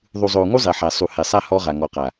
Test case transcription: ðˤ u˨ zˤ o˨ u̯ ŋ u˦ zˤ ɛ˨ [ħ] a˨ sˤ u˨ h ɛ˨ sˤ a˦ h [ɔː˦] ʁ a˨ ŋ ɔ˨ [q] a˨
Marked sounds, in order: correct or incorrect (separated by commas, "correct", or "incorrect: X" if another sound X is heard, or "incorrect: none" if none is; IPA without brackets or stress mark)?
correct, incorrect: ɔ˦, correct